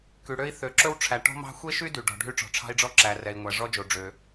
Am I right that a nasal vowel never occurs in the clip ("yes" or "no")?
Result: yes